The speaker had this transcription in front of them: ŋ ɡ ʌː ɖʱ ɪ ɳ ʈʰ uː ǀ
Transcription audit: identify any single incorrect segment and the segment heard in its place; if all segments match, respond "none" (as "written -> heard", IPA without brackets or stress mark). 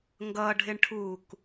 ǀ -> k